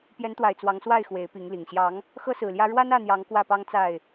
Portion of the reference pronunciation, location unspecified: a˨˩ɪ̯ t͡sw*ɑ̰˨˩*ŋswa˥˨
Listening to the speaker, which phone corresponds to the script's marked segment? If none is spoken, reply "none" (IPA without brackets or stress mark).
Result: ɑ˨˦